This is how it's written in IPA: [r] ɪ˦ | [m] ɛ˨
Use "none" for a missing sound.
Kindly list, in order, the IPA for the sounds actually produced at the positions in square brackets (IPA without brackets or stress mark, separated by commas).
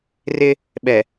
r, ɓ